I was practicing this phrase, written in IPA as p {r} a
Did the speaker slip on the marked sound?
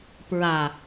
yes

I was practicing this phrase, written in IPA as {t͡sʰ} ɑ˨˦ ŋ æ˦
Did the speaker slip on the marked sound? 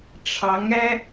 yes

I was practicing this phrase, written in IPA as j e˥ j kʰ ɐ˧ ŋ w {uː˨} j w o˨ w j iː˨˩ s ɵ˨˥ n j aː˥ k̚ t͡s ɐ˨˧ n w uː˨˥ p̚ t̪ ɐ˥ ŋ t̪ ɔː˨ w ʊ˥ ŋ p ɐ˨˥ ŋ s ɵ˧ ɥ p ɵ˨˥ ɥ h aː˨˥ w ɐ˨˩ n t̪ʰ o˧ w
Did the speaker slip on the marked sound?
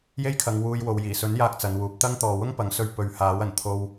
yes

